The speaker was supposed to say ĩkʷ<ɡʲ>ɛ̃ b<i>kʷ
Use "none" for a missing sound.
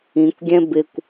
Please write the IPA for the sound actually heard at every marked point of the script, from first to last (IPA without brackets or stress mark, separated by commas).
ɡʲ, ɪ